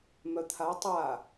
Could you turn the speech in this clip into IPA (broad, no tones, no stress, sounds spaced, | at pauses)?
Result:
m œ t̪ʰ a tˤ a